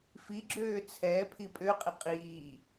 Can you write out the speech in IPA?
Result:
fiɡ͡ǁøː t͡sʰɛ pʰipʼøqʼi qʼiː

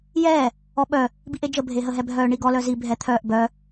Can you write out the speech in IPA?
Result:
jɛː | ɔɓœ | biʔed͡ʒə bʱeɦəɦɛbʱœː ɳiɡɔ lœzi bʱɛt̪ʰœːʔ bœ

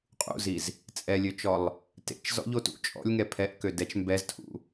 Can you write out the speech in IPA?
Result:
qʼṵziz | t͡sʼɛlʲøt͡ʃɔlˠ | tḛt͡ʃzɔ̰ʎo tṵ t͡ʃʼɔ̰lʲŋɛ pʰɛʔkø dɛt͡ʃ mbɛztʰṵ

